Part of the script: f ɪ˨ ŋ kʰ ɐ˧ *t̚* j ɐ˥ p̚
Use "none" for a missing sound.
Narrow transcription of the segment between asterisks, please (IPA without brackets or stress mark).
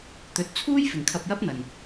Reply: p̚